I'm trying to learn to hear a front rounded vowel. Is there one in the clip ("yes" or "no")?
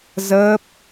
no